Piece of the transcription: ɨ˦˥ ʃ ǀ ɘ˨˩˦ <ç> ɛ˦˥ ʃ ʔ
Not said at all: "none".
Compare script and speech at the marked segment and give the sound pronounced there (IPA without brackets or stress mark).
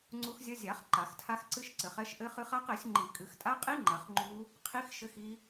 χ